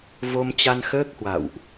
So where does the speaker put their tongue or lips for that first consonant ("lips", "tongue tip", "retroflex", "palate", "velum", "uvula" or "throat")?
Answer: lips